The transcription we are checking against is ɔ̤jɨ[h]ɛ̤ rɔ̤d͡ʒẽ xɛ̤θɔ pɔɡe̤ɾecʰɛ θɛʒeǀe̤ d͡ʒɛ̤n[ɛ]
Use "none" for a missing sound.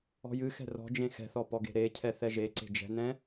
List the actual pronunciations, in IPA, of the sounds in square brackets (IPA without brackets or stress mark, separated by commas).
x, ɛ̃